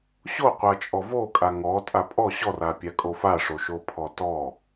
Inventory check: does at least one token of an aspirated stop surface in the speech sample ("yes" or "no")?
yes